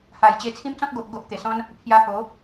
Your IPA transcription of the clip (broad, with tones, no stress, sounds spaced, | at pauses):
h a˨˩ j t͡ɕ e˧ t͡sʰ ĩ˦ m t͡s ɔ̃˦ k̚ ɡ o˨ ʔ ɡ o˦ ʔ t̪ e˨˩ s ɔ̃˦ n | pʰ j a˧ h o˨˦